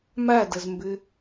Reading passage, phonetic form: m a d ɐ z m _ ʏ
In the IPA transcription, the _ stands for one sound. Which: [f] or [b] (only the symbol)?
b